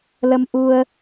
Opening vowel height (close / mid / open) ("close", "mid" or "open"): mid